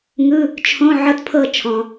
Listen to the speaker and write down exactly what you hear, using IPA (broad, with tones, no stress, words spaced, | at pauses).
ŋɯ˧˥˧ | t͡ʃʰõ˧˥˧ ʕɤ˥˨tpʰɤ˥˨ t͡ʃʰɔ̃˨